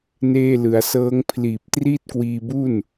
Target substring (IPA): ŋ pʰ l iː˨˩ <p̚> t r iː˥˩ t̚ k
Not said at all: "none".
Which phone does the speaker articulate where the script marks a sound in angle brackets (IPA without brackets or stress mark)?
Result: p̚